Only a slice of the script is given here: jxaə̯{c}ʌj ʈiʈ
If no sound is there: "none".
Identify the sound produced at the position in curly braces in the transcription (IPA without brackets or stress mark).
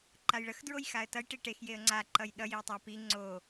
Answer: t